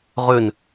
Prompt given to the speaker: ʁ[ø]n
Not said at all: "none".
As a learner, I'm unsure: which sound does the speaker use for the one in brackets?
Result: ø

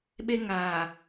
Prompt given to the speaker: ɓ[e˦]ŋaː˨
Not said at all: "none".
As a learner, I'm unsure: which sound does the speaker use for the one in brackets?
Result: e˦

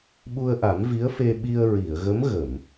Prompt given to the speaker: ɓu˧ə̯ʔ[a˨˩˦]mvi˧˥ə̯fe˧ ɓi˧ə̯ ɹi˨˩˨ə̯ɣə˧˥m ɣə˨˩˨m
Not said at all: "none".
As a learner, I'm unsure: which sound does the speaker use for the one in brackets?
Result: a˨˩˦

